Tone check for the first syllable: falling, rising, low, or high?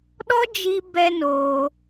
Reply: high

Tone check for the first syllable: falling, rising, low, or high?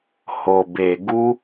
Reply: low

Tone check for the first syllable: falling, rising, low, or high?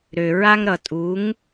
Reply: low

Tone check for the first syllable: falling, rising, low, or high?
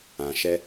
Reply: low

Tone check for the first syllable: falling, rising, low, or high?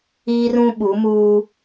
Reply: high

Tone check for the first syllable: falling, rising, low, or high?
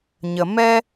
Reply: low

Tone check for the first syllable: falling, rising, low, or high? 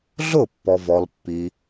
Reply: falling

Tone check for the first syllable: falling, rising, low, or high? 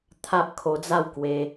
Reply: high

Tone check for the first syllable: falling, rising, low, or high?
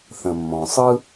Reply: low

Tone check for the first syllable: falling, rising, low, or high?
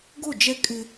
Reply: falling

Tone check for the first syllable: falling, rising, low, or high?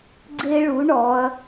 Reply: high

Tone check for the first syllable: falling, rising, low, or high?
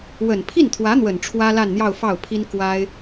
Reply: low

